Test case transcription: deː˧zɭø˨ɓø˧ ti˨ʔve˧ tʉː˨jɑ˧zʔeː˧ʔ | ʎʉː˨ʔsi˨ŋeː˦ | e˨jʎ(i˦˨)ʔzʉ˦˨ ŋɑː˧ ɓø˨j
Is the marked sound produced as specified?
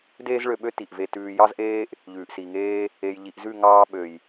no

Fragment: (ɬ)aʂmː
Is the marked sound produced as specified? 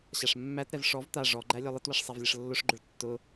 no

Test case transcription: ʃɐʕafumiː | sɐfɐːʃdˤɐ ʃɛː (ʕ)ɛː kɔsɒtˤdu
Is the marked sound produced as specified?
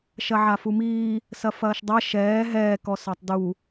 no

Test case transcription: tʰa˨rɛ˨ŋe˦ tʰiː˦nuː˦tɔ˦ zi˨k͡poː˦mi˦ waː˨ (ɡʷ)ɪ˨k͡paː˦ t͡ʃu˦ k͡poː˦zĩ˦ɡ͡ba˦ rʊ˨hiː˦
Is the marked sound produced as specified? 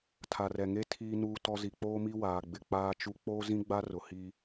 no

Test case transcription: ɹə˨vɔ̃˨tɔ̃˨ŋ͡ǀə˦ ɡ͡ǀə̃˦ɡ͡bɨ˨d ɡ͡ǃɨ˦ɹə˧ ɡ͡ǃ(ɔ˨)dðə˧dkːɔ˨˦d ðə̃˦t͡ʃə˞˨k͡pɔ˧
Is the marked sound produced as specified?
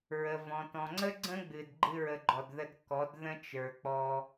yes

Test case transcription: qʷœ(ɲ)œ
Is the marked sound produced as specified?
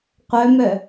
no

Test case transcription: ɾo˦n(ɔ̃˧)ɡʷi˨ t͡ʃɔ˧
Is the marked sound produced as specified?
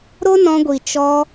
yes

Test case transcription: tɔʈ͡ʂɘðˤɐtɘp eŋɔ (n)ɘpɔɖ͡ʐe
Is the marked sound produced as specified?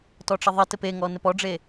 yes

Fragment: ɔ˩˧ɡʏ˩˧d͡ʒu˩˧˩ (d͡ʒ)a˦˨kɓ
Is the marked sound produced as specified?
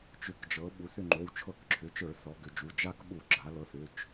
yes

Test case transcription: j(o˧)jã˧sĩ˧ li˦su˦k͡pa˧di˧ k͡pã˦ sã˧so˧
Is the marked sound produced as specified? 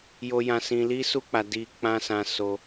yes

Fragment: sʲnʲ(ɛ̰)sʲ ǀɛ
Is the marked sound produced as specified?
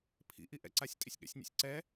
yes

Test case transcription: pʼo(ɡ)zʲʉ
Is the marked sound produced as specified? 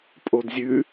no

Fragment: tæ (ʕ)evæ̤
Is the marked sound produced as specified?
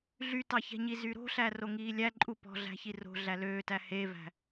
no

